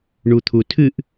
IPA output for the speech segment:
ɳut̪ʰutʰɨʔ

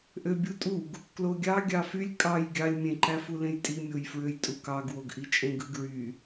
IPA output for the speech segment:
ʔøbʲutʼuɡ | kloɡʲɑ ɡʲɑfylʲ kʼɑj ɡʲɑlʲ mʲẽǃæfu lẽjtʼimʲojfɹøj tʼukɑɡwoɡʔi t͡ʃʼẽɡɯɡɹy

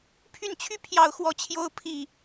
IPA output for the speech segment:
pʰy˥˩nt͡ɕʰy˥ pʰjɑ˥˧ʊ̯xwɔ˥˩t͡ɕʰjo˥ʊ̯ pʰi˥˩

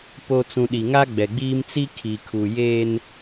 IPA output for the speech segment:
po˨t͡sũ˨ ɗi˨ŋa˦ɡ͡bɛ˨ɡ͡biː˦m t͡si˦kʰi˨kʰu˨jeː˦n

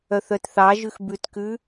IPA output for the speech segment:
œθœtθɑʒʉx bʉtkʉ

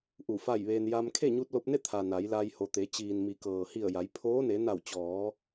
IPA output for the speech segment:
ʔu˧˩fa˥˨jʋeː˧n ja˧m kʰe˥˨ɲu˧t̚lo˧p̚ne˥˨ t̪ʰa˩ na˩˧jla˧j ho˩t̪e˩˧t͡ɕiː˩n mi˩˧kɤː˩ hi˧˩ə̯ja˩˧j pʰoː˧˥ne˩˧ na˧˩wt͡ɕɔː˩˧

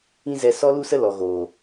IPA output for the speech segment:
ĩ˦zɛ˧ sɔ˦lu˦sə˦ lɔ˨ɣoː˨

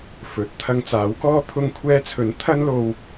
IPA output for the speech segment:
fɵ˨˥t̚ t̪ʰɐ˧ŋt͡saː˨˥wkɔː˥ t̪ʰʊ˧ŋkʷʰɛː˧t͡sʰɵ˨˥n t̪ʰɐ˥nlo˧w

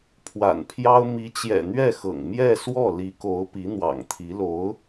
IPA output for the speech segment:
pʰwa̰˨˩npʰjɑ˥ʊ̯ mi˧˥t͡ɕjɛ̰˨˩n̪ɥɛ˥˩ xɤ̰˨˩ŋmjɛ˥˧ swɔ˥˩ li˧˥ko˧˥ʊ̯ pi˧˥n̪wɑ̰˨˩ŋt̪ʰi˧˥lo˧˥ʊ̯

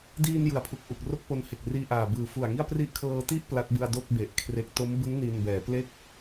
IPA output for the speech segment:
diː˧njɯ˩˦a̯ pʰu˨˩k̚ ʔu˨˩k̚ro˥˩k̚po˧n he˨˩k̚riː˧ʔaː˨˩ bɯː˨˩fu˨˩a̯ŋi˥˩a̯pri˥˩ʔ kʰɤː˧ti˥˩ʔ pla˦˥t̚bɯ˧a̯ do˥˩k̚be˨˩ʔkʰre˦˥k̚ to˦˥mbɯ˦˥ŋ ni˧n bɛː˩˦ple˥˩k̚

